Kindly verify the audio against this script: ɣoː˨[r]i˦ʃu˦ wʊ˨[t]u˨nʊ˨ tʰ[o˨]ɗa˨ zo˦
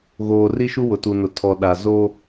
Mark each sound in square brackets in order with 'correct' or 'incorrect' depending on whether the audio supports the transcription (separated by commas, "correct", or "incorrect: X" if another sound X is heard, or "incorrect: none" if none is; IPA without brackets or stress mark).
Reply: correct, correct, incorrect: ɔ˨